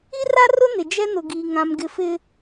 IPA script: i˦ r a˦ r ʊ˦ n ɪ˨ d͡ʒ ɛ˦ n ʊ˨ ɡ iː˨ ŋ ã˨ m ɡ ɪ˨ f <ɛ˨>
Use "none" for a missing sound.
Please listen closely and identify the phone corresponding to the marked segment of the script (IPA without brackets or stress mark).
ɪ˨